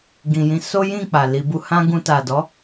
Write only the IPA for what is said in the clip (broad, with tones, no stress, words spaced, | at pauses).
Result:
ɡĩ˨jĩ˨˦ so˦jĩ˦˨ k͡pa˨li˧bu˦ hã˦ɡũ˧ ta˨dɔ˨˦